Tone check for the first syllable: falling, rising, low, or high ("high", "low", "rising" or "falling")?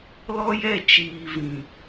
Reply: high